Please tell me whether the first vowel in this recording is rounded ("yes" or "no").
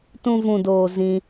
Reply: yes